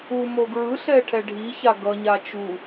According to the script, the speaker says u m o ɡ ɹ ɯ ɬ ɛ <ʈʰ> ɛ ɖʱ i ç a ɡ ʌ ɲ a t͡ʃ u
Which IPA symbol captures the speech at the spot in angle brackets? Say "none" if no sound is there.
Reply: ʈʰ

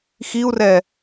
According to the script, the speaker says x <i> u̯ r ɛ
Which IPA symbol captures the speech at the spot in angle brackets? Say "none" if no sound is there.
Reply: i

